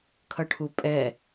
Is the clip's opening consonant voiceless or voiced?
voiceless